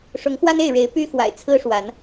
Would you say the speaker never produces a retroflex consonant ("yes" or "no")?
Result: no